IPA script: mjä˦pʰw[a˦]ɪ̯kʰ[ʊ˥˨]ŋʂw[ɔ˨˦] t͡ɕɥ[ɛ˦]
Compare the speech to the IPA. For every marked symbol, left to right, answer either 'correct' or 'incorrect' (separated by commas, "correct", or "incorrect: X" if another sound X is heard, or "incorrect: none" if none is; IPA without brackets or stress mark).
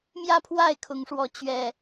incorrect: a˥˨, incorrect: ʊ˨˦, correct, incorrect: ɛ˨˩